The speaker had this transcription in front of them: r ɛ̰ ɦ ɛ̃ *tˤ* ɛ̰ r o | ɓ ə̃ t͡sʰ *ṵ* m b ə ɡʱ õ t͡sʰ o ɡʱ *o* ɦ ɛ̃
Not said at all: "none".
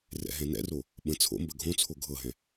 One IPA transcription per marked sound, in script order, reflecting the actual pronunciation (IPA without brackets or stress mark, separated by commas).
n, o̰, ɤ